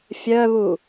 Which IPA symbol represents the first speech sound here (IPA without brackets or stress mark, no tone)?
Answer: fʲ